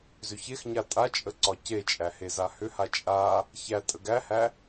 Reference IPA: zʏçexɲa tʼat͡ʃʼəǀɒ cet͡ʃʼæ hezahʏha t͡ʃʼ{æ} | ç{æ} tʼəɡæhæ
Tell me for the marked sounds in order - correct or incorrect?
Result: incorrect, correct

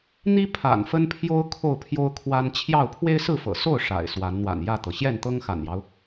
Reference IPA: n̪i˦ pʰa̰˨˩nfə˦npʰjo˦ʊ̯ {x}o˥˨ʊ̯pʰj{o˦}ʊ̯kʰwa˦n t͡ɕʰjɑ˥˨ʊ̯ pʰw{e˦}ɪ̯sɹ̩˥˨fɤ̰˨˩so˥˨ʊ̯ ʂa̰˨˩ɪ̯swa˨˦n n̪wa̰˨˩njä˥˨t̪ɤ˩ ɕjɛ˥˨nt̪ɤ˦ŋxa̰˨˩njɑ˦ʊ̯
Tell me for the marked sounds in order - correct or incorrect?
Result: incorrect, correct, correct

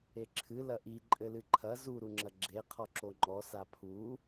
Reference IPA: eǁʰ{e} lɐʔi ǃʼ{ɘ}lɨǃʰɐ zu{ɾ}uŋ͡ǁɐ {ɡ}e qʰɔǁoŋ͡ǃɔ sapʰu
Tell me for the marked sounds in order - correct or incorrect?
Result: incorrect, correct, correct, incorrect

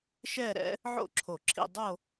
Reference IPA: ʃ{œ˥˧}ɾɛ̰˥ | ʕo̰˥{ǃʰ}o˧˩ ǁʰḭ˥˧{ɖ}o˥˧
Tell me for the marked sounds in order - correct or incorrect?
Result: incorrect, incorrect, incorrect

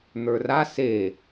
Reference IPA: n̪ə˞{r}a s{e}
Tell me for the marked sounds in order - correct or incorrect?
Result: correct, correct

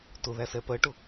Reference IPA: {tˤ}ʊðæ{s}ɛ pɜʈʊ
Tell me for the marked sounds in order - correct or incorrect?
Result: incorrect, correct

